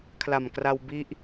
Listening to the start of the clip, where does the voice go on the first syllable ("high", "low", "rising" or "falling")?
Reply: low